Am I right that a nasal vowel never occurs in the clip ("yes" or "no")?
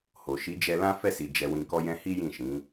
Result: no